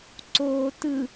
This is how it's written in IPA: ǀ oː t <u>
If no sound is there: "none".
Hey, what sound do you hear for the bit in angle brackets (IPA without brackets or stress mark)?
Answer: ɯ